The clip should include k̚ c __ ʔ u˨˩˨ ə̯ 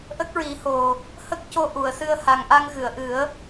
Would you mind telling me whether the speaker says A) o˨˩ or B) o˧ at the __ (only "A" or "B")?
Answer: B